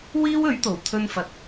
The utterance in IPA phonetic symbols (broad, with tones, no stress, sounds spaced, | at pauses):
w iː˥ w ɵ˨˥ ɥ t̪ o˨˩ w t̪ʰ ɵ˧ n f ɐ˨ t̚